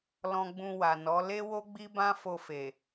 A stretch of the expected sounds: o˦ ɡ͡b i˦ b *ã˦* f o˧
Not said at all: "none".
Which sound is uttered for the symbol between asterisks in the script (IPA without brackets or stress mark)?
ã˦